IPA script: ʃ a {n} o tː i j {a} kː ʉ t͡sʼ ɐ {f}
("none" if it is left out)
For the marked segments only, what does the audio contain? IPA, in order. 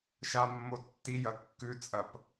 mː, ɐ, p

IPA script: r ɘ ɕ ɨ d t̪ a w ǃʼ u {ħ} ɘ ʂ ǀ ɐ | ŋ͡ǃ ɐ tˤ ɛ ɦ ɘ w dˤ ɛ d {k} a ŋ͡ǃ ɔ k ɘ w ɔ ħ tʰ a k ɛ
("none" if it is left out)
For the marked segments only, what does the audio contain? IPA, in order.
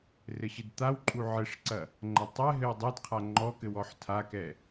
ʕ, qʰ

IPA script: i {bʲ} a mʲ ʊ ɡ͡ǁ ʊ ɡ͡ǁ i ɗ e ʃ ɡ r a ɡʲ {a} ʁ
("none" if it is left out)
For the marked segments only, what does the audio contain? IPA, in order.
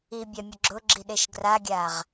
bʲ, a

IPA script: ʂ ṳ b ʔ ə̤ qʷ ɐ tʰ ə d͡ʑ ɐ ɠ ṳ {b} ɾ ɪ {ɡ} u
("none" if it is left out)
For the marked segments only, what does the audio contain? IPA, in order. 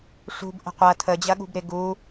b, ɡ

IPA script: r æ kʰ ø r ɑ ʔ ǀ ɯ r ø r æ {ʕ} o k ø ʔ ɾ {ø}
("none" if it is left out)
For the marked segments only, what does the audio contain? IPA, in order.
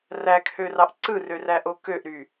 ʔ, y

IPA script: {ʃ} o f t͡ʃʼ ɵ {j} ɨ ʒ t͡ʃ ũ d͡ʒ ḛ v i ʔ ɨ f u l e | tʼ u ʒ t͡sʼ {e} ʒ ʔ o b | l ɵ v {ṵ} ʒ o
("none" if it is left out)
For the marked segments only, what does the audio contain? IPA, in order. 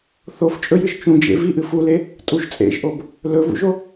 θ, j, ḛ, ṵ

